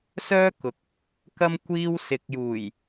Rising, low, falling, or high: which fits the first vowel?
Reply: high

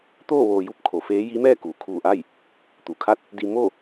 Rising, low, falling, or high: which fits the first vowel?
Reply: falling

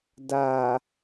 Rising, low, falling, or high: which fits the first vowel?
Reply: low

